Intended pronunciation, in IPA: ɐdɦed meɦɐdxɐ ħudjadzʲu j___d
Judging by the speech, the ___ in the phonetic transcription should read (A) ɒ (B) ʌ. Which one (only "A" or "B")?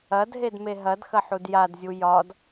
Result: A